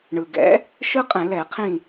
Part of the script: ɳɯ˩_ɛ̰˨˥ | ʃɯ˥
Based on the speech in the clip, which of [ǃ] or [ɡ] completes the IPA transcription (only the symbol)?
ɡ